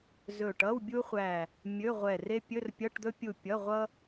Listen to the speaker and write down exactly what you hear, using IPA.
z ɵ˧˩ ʈ ʌ˧˥˧ w bʲ u˥ χʷ æ˧˩ | mʲ ɵ˧˥˧ ʁʷ ɛ˧˩ r e˥ pʲ ɵ˧˥˧ r pʲ ʌ˧˥˧ ʈ d̪ ɵ˥ pʲ u˧˩ pʲ ʌ˧˥˧ ʁʷ ʌ˥

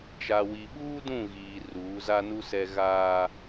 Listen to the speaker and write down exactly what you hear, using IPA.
t͡ʃ a˨ w i˨ ɓ uː˦ d ũ˦˨ ɣ iː˨ r uː˨˦ z a˦ n u˦ s ɛ˦ ɣ aː˦

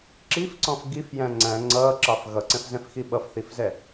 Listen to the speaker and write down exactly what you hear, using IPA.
ǁ i f ǀ ɔ̃ f ɡ i f j æ̃ ŋ͡ǀ æ̃ ŋ͡ǀ ʌː ǁ ɑ f ɣ ʌ ǀ ɛ̃ f z ɛ̃ f x i ɓ ʌ f θ i f z ɛ

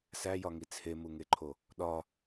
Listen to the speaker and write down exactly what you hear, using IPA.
s æ j ɒ ŋ i t͡sʰ e m u ŋ e ǃʰ o | ɗ ɒ

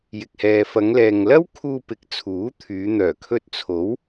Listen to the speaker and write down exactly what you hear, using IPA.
j ɪ˨ k̚ h ɛː˨ f ɐ˨˧ ŋ l ɛː˨ ŋ l ɐ˥ w kʰ uː˧ p ɪ˨˥ k̚ t͡sʰ uː˨˥ t̪ʰ yː˨˧ n̪ œː˨˩ kʰ ɵ˧ t̚ t͡sʰ o˨˥ w

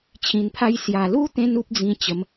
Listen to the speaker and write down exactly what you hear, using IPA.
t͡ɕʰ ĩ˨˩ n pʰ a˧ j s j a˨˩ l u˦ t̪ ẽ˧ n u˦ p̚ d͡z ĩ˧ t͡ɕ ə˨˦ m

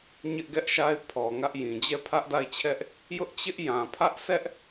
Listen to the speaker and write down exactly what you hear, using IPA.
ɲ ɪ˦ ʔ ɡ ɛ˦ ʔ ʃ a˦ ɪ̯ pʰ ɔ˨ ŋ ä˦ ʔ j ĩ˨ d͡ʑ ɛ˦˨ pʰ ä˦ ʔ d a˦˨ ɪ̯ t͡ɕʰ ɛ˦ ʔ | j ʊ˦ ʔ t͡ɕ ɪ˦ ʔ j ã˨ pʰ ä˦ ʔ s ɛ˦ ʔ

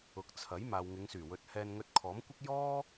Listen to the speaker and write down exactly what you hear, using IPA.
ʊ˨ k̚ t͡sʰ ɐ˨˥ j m aː˨ w ŋ ɪ˨˧ ŋ s yː˨˩ w ɵ˧ t̚ h ɛː˧ n ŋ ɵ˧ t̚ kʰ ɔː˨˥ m kʷ ɪ˥ k̚ j ɔː˥

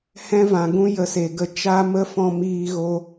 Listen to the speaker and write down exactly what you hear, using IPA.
h ɛ̃˦ v ã˨ ɡ ũ˦ j ə˧ s e˨ ɡ ə˧ t͡ʃ a˦ m ə˦ f ɔ̃˧ m iː˧ ɣ o˧

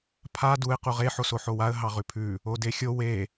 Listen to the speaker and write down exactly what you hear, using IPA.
pʰ a d u ɪ̯ q u ʁ e ħ o s o ħ o w a ə̯ ɦ ɑ ʁ ʉ pʰ ʉ | o d e xʲ o w e

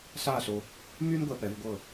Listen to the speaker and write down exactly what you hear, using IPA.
ɬ a˥˧ ɬ o˧ | m y˥ n ɡʷ ɛ˧ p ɛ˩˧ v ɡʷ ɤ˧˩

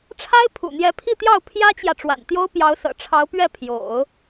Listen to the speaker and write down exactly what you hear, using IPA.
ʈ͡ʂʰ a˥ ɪ̯ pʰ ṵ˨˩ n̪ j ɛ˧˥ pʰ i˥˧ t̪ j ɑ˥˩ ʊ̯ pʰ j ä˥ t͡ɕ j ä˨ ʈ͡ʂ w a̰˨˩ n t̪ j o˥ ʊ̯ p j ɑ˧˥ ʊ̯ s ɤ̰˨˩ ʈ͡ʂʰ ɑ˧˥ ʊ̯ p ɥ ɛ˥˩ pʰ j o̰˨˩˦ ʊ̯

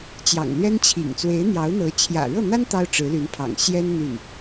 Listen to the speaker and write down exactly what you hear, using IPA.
t͡ɕ j ɑ̰˨˩ ŋ l ɥ ɛ˥ n t͡ɕʰ ḭ˨˩ ŋ t͡s w e˧˥ ɪ̯ n̪ j ɑ˧˥ ʊ̯ n̪ ɤ˧˥ t͡ɕʰ j ä̰˨˩ ɻ ɤ˥˩ n̪ a˥ n t̪ ɑ˥ ʊ̯ ʈ͡ʂ ɻ̩˧˥ l y˧˥ n pʰ ɑ̰˨˩ ŋ ɕ j ɛ˥ n n̪ y˥˩ n

